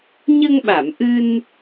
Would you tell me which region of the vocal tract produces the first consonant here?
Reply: palate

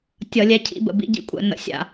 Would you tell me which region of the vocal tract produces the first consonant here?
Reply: tongue tip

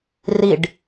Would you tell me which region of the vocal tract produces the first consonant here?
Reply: tongue tip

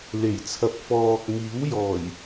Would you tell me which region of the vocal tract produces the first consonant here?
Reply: tongue tip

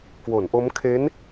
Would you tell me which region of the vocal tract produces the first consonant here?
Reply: velum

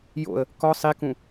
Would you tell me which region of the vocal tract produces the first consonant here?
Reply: palate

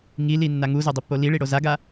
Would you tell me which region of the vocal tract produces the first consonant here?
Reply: velum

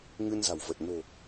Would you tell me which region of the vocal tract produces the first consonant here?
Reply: velum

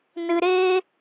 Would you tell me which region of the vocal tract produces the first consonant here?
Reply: tongue tip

